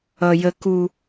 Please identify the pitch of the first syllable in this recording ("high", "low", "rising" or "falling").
low